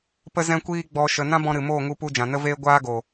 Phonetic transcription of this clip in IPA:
p ə˧ z ɛ̃˧ kʷ iː˧ ɡ͡b ɔ˨ ʃ ə˨ n ã˦ b ɔ̃˧ ɾ ɨ˨ m oː˦˨ ŋ u˧ p u˧ d͡ʒ ã˨ n ə˦ v eː˦ ɡʷ aː˦ ɡ oː˨

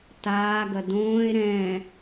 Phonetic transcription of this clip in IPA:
t aː ɡ ɐ d õː e̯ ɾ ɛ̃ː

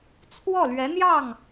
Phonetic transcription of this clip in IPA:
t͡sʰ w ɔ˥˩ l ɥ ɛ˧˥ n̪ j ɑ˥˩ ŋ

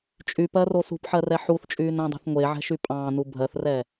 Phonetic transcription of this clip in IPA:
t͡ʃʼ y p ɜ r o s ṳ p ħ ɜ r ɛ ħ u θ t͡ʃʼ yː n æ̃ dˤ e̤ θ ŋʷ e ʕ ɛ̤ ʃ y pʼ ɑ̃ː n u bʱ ɜ θ r ɛ

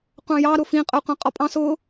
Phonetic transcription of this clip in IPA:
qʷ ɑ̃ j ɑ ɾ ʊ f ĩ qʼ ʊː qʷ ã qʼ ɔ pʼ ɑ̃ s ʊː

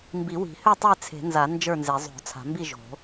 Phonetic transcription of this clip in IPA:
m b i˨˩˦ w i̤˨˩˦ h ø˥˨ tˤ e˥˨ t͡sʰ e̤˨˩˦ n z a˨˩˦ n d͡ʒ ə˞˥˨ n z e˨˩˦ zˤ o̤˨˩˦ t͡sʰ a̤˨˩˦ m b i˥˨ ʒ o̤˨˩˦

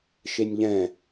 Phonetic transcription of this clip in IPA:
ʃ e nʲ ʎ ɛ̃

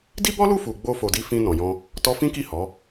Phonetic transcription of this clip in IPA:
d i˦ b ɔ˦ l u˦˨ f u˨ ɡ͡b o˧ f o˨ d i˧ f ĩ˧ n ɔ̃˨ j ɔ̃˧ | t ɔ˧ f ĩ˦ k i˦˨ h ɔ˨˦

